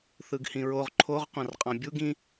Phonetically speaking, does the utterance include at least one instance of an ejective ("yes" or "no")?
yes